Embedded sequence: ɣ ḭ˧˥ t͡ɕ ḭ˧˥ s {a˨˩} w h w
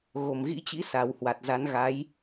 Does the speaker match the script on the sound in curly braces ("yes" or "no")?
yes